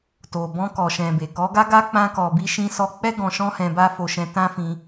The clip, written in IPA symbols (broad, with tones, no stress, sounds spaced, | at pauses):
t o˨ b ɔ̃˧ k ɔ˨ ʃ ɛ̃˨ b e˨ k ɔ˨˦ ɡ a˦ ɡ a˦ k͡p ã˦ k ɔ˧ b i˦ ʃ ĩ˧ s ɔ˧ k͡p ɛ˦ ɡ ɔ̃˧ ʃ ɔ̃˦ h ɛ̃˧ b a˦ f o˧ ʃ ɛ̃˧ t ã˦ f ĩ˧